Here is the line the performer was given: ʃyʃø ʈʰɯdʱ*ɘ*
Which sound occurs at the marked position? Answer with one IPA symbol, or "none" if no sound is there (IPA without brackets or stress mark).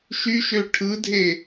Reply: e